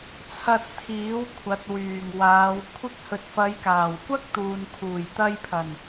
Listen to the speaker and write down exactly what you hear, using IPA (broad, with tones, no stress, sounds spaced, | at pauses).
t͡sʰ ɐ˨ t̚ t̪ʰ iː˨˥ w kʷʰ ɐ˨˥ t̚ w yː˨˩ ŋ w aː˨˧ w kʷʰ ɪ˧ k̚ h ɵ˨ t̚ f ɐ˨˧ j k aː˨˩ w kʷ ɐ˥ k̚ t̪ uː˨ n kʰ uː˨˩ j t̪ ɐ˧ j pʰ ɐ˨˩ n